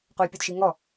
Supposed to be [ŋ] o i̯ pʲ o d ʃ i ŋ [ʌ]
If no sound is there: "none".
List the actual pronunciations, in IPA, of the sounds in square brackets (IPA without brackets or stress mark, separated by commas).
q, ɔ